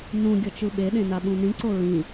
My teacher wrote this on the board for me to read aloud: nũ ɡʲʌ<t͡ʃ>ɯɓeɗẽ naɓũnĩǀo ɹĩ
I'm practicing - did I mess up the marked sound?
no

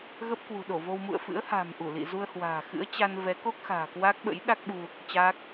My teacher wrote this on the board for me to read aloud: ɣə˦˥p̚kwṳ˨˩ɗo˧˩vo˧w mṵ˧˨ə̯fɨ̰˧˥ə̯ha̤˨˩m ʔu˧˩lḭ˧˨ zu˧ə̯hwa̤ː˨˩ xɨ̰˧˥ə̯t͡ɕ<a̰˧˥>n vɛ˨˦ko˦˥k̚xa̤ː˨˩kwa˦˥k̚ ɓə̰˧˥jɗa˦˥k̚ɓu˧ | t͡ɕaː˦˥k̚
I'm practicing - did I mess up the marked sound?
yes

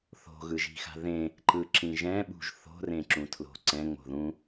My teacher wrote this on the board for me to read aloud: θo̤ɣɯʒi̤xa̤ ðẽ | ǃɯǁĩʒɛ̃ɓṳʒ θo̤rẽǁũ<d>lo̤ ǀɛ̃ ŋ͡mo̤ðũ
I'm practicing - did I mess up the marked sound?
yes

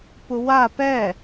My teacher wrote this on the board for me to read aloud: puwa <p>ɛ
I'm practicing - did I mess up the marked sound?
no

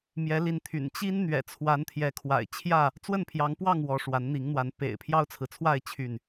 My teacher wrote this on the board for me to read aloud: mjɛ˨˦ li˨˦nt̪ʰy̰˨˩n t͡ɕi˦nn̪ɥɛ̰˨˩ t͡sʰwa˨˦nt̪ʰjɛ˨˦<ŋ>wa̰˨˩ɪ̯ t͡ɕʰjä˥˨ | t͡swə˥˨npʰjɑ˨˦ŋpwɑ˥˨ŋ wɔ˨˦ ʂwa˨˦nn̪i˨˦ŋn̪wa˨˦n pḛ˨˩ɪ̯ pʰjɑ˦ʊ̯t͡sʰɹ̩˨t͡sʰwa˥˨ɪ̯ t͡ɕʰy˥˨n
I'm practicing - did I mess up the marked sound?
yes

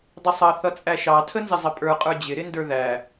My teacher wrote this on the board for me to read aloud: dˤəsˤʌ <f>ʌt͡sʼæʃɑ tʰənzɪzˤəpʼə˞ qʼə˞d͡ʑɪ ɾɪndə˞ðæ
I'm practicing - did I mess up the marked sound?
yes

